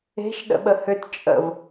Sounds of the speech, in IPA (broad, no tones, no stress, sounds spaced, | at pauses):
e̤ ʃ ɗ ə̰ ɓ ə h ø t t͡ʃʼ ə̰ v